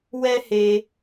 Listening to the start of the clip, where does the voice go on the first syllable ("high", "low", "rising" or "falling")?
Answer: high